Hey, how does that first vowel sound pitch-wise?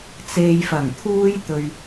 low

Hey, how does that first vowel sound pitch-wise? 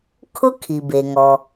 high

